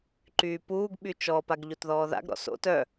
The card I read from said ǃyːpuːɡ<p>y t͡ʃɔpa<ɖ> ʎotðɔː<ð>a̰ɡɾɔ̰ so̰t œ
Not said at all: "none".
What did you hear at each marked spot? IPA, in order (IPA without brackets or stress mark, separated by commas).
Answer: ɓ, ɡ, ð